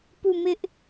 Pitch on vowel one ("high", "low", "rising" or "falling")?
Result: falling